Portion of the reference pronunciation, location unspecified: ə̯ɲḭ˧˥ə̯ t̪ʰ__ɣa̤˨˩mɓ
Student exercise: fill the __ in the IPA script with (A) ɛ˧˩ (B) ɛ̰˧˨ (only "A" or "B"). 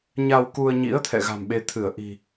B